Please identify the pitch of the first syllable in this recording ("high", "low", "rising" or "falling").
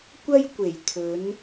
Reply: high